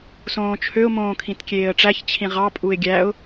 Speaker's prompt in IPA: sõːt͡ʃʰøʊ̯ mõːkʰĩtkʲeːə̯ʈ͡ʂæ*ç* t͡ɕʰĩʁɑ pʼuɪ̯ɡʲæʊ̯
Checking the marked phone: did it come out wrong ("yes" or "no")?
no